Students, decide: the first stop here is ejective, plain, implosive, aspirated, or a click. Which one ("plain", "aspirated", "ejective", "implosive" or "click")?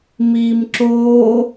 click